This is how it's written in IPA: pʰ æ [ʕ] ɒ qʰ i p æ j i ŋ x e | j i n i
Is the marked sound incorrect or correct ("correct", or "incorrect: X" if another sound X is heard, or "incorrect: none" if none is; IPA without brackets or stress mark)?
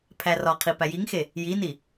incorrect: r